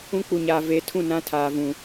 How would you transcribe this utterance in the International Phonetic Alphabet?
ũ˦ k͡p u˨ ɲ aː˨ v e˨˦ tʰ ũ˦˨ n ã˦ tʰ aː˨ v ũ˨

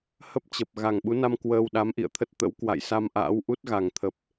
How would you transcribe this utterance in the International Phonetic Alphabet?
h ə˦˥ p̚ t͡ɕ ə˨˩ p̚ ɣ a˨˩ ŋ ɓ u˨˦ n a˧ m k w əː˧ w ɗ a˨˦ m ʔ ḭ˧˨ ə̯ t̪ʰ ə˦˥ t̚ t̪ ə̰˧˥ w k w a̰˧˨ j s a˧ m ʔ a̰ː˧˥ w ʔ u˦˥ t̚ ɣ a˨˩ ŋ t̪ʰ ə˨˩ p̚

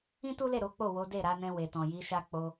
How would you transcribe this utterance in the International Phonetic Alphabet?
ĩ˦ t u˦ l e˦˨ ɾ o˨˦ k͡p o˦˨ w o˨˦ d e˦˨ ɾ a˨˦ n ɛ̃˧ w e˨ t ɔ̃˨ j i˨˦ ʃ a˦ k͡p o˧

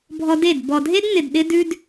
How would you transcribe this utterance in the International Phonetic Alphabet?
bʱ ɔ˧ d e˦˨ d b ɔ˨ dʱ e˦ d n̪ ɪ˨ d ɗ ɪ˧ d ʉ˧ d

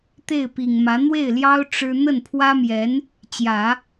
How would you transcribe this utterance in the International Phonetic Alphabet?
t̪ e˥˩ ɪ̯ p i˨˩ ŋ m ä˧˥ n̪ w e˥˩ ɪ̯ l j ɑ˥ ʊ̯ ʈ͡ʂ ɻ̩˥ n̪ ə˥˩ n pʰ w ä˥ m j ɛ˧˥ n | t͡ɕ j ä˨˩˦

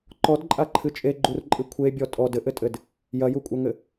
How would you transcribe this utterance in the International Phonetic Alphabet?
ǃ ɔ d ǃʼ a ǃʰ ɨ t͡ʃʼ e ɡ͡ǃ u r ǃʼ ɨ kʷʰ e bʲ ɔ tʼ ɔ d ɘ ʔ ɘ tʼ ɘ d | j ɐ j u kʷʼ ɐ ŋ ɘ

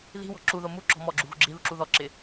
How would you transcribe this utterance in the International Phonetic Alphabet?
ð i̤ w ɔ̤ ǁ u ð o m u ǁ ɔ̤ m ɔ ɡ͡ǁ u ɣ ṳ ɡ͡ǁ i ð u ǁ u ð ɔ ǁ ɪ

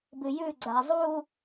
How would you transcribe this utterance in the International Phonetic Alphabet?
b ɨ j ʉ ɡ͡ǀ a zˤ u

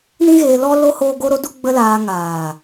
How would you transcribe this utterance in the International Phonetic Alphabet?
n ĩ˦ ɣ eː˧ l ɔ˦ l o˦ h oː˦ ɡ o˦ ɾ o˦ d u˦ ɡ͡b ə˦ l aː˧ ŋ aː˨

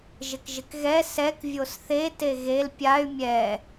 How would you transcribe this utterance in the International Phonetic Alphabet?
ʒ ɪ k ʒ ɪ k ɣ ɛ s ɛ k vʲ o s θ e t e ɣ e l pʲ a y̯ mʲ ɛ

